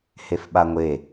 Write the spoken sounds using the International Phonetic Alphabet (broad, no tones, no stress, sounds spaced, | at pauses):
h e f ɓ a ŋʷ e